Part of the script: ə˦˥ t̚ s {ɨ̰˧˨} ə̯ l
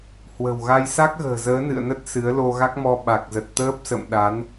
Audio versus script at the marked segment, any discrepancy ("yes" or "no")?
yes